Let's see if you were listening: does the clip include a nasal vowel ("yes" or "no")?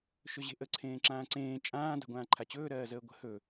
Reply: yes